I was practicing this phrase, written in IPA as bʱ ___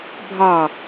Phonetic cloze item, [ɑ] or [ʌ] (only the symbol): ɑ